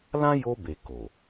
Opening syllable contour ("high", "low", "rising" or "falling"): high